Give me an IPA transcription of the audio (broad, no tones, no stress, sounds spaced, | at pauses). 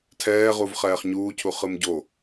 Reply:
tʰ ɛː ʁ u v χ ɛː χ ɲ uː cʰ u χ ɯ m ɟ o